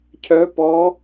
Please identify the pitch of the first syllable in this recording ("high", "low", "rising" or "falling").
rising